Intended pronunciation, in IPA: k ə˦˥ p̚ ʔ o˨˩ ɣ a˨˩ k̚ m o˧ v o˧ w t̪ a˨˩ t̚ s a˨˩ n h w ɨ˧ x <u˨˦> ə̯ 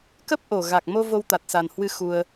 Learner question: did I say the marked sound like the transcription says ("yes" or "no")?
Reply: no